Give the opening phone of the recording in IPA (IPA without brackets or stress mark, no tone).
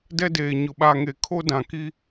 d